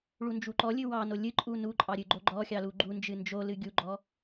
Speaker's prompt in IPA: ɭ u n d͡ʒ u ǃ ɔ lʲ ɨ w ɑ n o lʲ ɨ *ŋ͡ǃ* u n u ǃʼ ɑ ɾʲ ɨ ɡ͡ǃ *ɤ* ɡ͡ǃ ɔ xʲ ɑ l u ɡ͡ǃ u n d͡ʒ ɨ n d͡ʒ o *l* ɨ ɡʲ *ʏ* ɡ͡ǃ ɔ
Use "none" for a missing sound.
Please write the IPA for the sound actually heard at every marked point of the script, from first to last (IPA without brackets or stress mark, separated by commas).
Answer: ǃʼ, o, l, u